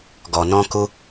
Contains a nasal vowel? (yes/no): yes